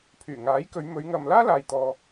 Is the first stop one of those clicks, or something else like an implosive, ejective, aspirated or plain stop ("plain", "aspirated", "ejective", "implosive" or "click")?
aspirated